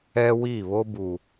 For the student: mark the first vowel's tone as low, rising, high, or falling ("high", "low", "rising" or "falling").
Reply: high